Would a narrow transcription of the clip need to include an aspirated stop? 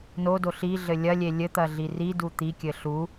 no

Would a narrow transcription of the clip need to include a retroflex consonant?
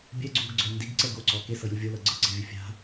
no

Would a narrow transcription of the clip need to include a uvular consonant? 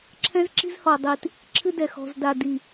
no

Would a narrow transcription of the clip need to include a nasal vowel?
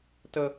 no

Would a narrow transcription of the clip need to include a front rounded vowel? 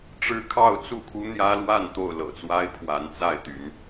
yes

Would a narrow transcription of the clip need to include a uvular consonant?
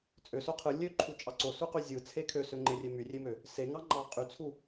yes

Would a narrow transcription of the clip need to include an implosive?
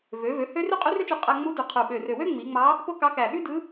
yes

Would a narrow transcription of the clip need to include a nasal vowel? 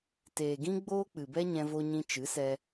yes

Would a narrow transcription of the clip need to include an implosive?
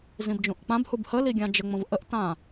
no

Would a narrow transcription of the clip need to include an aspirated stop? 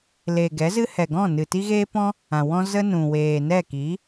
no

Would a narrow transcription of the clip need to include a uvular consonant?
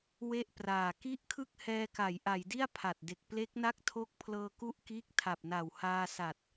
no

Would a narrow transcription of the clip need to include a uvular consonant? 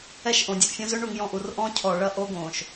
no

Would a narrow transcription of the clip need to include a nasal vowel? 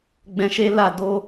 yes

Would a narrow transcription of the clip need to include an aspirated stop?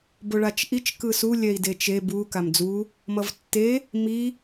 no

